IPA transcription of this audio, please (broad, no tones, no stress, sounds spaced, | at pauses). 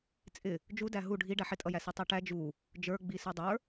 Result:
t͡sʼ ɪ | d͡ʒ u d æ ɦ u ɖʱ i ɖ æ ħ ɪ tʼ ʌ j æ s i tˤ ɛ ʈ æ d͡ʒ u | d͡ʒ ə˞ ɡ͡b i s ə˞ dˤ ə˞